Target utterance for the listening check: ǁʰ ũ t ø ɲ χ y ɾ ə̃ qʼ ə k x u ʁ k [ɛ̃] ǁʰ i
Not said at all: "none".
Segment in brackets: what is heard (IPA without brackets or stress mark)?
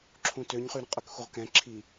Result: ɛ̃